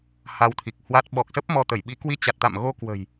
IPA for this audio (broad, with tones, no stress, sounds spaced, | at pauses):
h a˧ w t̪ʰ i˨˩ k̚ h w a˦˥ t̚ ɓ ɔ˨˩ k̚ s ə˦˥ p̚ m ɔ˧ t̪ ə˧˩ j ɓ i˨˦ k w i˧ t͡ɕ a˨˩ t̚ t̪ a̰˧˨ m ɣ o˧ k w ə̤˨˩ j